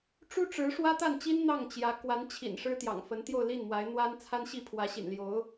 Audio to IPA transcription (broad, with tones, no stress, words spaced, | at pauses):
ʈ͡ʂu˥ʈ͡ʂɻ̩˧˥ ʂwä˥t̪a˥˩nt͡ɕi˥n n̪ɑ˥˩ŋt͡ɕjä˧˥ kwa˧˥nt͡ɕʰḭ˨˩n ʂɻ̩˥t̪jɑ̰˨˩ŋ fə˧˥nt̪jo˥˧ʊ̯li˥˩nmwa˧˥ɪ̯ n̪wa˥n t͡sʰa˥nɕi˥˩ pʰwä˧˥ɕḭ˨˩n ljo˧˥ʊ̯